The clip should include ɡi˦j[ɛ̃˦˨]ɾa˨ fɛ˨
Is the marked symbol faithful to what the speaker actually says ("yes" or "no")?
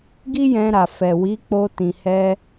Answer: no